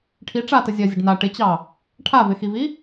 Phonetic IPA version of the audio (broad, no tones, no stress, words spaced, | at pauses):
ʈʰi ʈ͡ʂatə zʲɜzʲəɖ na ʈɪt͡ɕɑ | ʈʰavɪxivi